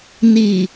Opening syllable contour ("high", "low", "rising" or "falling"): low